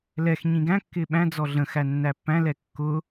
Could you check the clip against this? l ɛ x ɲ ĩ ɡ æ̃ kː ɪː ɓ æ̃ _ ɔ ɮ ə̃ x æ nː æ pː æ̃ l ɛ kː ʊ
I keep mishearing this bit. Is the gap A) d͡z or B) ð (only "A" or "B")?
A